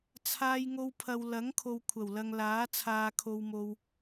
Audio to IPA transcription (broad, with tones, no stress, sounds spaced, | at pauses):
t͡sʰ aː˧ j ŋ o˧ w pʰ ɐ˨ w l ɐ˨˥ ŋ kʰ o˨ w kʷʰ ɐ˨˩ w l ɐ˨ ŋ l aː˨˥ t͡sʰ aː˧ kʰ o˧ w m o˧ w